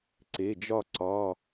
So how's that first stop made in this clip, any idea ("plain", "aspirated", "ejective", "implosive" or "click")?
click